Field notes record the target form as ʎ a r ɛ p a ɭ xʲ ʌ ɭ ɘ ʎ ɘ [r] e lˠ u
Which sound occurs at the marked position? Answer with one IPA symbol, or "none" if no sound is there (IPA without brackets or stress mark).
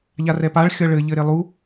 ɾ